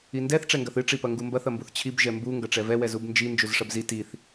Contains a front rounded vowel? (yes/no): no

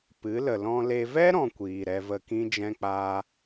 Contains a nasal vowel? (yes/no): yes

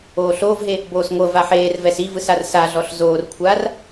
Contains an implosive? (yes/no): no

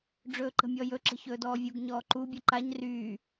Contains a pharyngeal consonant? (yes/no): no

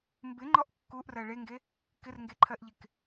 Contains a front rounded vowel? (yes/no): no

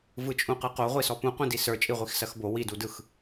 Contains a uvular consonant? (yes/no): yes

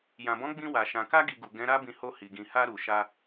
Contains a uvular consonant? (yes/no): no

